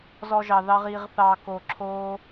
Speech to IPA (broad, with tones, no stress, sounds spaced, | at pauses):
z ɔ˧ ʒ ɑ˨ ð ɑ˧ ʁ i˨ ʁ θ ɑ˨ k o˨ ǁʰ o˦